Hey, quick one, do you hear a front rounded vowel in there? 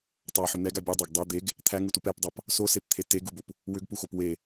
yes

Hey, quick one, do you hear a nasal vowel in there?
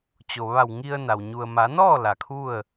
no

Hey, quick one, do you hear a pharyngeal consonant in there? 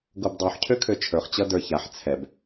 yes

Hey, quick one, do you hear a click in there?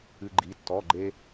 yes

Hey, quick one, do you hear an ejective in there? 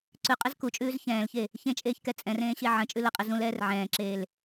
yes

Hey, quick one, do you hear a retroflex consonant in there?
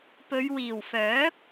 no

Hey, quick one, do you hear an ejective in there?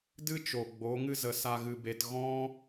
no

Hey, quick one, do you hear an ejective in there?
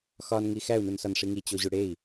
no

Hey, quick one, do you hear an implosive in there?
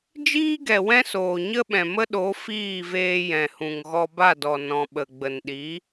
yes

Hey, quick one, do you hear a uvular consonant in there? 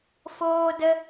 no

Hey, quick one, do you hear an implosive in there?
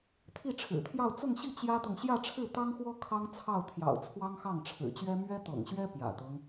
no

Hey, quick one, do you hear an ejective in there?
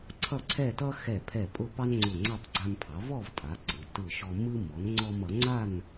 yes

